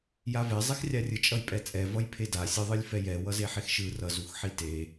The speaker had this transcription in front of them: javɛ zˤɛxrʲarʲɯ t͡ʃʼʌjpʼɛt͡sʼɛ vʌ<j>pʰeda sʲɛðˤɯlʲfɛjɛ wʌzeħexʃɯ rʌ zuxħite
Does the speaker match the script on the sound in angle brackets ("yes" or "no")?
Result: yes